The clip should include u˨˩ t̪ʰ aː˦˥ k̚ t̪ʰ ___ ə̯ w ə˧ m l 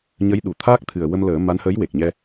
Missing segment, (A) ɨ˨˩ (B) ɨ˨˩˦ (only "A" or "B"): A